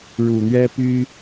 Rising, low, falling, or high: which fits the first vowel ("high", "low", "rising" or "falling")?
low